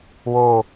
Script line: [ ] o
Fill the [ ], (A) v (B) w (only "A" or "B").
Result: B